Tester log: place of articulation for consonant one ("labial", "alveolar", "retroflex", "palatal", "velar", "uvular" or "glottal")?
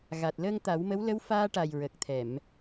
velar